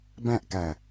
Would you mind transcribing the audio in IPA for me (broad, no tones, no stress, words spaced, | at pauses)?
bæ̃ʔkæ